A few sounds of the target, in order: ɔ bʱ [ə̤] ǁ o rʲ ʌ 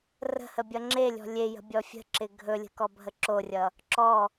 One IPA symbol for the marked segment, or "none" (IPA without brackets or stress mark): ə